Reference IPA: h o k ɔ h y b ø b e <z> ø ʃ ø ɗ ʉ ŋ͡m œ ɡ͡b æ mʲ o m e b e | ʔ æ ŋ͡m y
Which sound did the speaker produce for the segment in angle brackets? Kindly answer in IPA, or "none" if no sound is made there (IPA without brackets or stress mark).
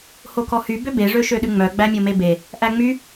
ʐ